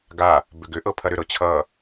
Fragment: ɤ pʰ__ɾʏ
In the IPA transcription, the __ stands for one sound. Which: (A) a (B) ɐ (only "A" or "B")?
B